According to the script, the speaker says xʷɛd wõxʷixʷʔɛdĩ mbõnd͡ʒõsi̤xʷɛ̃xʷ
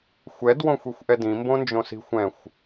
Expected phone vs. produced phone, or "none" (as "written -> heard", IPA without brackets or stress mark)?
none